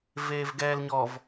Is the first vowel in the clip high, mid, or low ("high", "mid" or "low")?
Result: mid